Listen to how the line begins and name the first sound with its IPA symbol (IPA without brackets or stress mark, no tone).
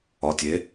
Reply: ɒ